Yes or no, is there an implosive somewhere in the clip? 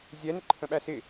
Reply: yes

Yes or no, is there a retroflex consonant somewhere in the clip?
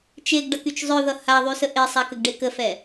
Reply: yes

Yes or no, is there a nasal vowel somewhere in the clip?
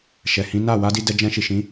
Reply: yes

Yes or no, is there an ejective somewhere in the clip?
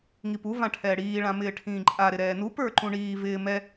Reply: yes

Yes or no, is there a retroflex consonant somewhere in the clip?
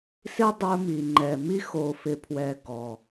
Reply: no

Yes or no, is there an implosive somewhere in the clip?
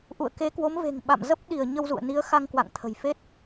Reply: yes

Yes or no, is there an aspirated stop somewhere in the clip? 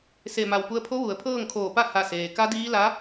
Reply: yes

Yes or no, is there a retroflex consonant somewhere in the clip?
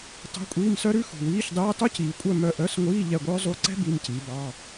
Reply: no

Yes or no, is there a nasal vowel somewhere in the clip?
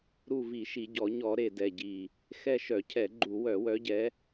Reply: no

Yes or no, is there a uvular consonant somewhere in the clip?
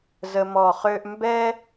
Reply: yes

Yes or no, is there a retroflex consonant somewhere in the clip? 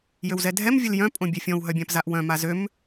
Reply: no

